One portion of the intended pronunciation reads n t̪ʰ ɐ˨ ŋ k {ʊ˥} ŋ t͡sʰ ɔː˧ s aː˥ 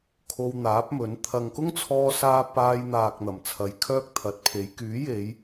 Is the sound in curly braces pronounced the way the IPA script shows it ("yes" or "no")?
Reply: yes